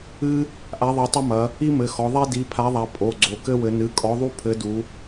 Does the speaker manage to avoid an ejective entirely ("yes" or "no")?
no